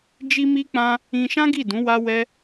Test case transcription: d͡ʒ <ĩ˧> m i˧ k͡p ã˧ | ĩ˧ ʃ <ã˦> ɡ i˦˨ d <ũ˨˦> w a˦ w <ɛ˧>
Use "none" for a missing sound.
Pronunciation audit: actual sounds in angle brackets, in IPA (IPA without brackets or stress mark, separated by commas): i˧, ã˦, ũ˨˦, ɛ˦